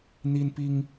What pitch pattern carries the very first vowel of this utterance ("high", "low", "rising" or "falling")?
high